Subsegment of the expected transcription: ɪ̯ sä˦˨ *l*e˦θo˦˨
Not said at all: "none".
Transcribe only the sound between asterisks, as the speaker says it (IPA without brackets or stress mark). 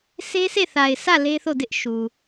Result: l